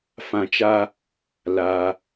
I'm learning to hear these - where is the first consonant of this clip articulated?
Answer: lips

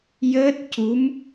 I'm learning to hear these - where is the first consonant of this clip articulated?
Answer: palate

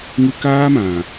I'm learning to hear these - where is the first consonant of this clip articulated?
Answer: velum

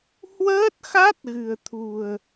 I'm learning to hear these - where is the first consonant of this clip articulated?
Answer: throat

